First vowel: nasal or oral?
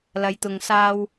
oral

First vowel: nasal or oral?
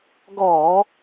oral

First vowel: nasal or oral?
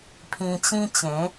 nasal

